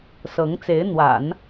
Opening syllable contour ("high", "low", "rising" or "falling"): rising